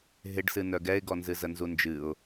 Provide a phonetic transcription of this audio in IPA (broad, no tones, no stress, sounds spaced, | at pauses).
ɦ ɪ ɖ s ɨ n œ ɡ ɛ ɪ̯ ɡ ɔ n z ɨ z ə n z u n d͡ʒ ɨ ʊ̯